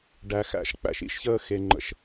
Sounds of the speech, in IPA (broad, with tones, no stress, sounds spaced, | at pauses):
ɖ æ˨ x æ̰˨ ʃ k͡p æ̰˨ ʃ ḭ˦ ʃ ç əː˦ x e˨ ŋ͡ǃ ə̰˨ ʃ